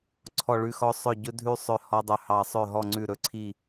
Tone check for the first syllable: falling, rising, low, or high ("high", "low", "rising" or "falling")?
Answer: falling